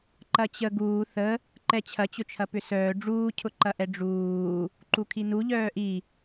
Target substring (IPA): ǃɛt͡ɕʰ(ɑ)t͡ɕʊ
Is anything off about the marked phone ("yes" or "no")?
yes